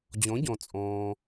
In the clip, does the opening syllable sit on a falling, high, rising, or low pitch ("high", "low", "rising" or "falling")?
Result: rising